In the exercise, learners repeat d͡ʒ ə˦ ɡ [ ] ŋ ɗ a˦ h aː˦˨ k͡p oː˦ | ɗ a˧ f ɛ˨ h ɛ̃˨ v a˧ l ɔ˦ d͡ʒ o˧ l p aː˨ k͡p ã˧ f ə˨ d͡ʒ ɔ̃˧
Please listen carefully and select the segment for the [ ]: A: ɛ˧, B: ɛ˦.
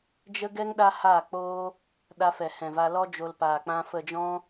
B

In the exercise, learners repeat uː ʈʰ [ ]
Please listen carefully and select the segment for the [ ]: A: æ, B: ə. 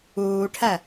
A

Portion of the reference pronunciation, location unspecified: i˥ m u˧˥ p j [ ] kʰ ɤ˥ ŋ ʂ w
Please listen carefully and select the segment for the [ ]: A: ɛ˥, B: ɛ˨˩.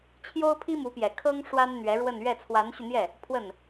B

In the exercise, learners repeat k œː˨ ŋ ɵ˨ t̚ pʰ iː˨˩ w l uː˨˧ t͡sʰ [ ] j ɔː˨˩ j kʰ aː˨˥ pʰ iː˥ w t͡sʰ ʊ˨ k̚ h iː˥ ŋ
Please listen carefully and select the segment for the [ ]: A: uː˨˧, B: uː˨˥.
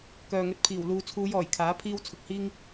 A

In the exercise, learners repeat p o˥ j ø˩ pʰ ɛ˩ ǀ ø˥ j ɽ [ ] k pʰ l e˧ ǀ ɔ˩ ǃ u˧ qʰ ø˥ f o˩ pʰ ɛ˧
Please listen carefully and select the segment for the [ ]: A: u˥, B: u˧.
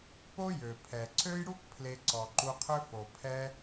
A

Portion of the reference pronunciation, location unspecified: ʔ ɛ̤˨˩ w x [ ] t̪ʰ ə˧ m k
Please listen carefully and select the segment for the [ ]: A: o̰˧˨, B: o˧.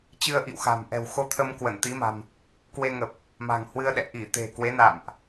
B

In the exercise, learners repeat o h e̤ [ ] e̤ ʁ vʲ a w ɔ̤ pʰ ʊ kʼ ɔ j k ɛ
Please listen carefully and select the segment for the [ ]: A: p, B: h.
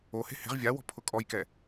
B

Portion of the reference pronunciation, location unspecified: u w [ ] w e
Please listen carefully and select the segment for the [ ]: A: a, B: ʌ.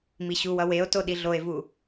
B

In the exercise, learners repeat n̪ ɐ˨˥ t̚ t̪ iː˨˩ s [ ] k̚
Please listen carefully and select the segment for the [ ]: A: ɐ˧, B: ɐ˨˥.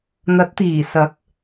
B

